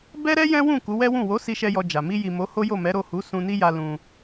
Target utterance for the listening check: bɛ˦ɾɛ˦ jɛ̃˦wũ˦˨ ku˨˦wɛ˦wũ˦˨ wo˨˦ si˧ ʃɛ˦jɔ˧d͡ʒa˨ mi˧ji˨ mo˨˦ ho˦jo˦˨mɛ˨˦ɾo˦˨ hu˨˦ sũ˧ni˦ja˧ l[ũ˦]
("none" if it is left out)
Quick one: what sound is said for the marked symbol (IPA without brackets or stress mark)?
ũ˧